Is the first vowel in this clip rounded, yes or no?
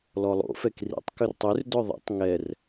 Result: yes